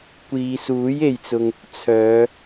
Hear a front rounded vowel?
yes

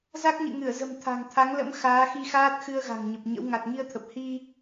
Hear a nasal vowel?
no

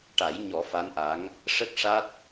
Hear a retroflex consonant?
yes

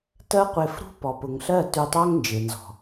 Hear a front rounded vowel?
no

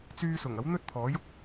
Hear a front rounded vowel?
yes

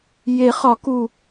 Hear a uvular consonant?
yes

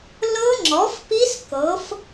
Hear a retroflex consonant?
no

